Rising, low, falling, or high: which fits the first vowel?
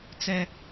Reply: high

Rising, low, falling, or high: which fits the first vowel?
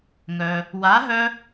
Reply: low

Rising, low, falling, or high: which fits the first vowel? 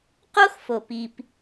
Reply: high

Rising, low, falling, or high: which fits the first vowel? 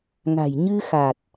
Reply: low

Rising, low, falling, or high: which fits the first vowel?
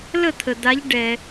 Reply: falling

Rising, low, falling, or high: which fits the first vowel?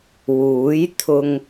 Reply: rising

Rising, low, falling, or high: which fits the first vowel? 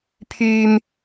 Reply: high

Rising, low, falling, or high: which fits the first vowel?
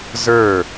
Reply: falling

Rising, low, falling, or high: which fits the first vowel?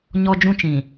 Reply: high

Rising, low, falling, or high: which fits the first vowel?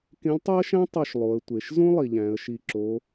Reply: rising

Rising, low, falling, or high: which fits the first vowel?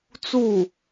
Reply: falling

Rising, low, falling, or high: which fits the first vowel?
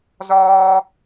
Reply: high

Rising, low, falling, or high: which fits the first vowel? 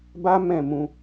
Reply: high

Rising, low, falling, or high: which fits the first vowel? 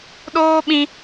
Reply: high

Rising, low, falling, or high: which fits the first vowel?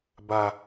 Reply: low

